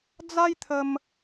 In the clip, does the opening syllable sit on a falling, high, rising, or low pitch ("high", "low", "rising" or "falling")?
high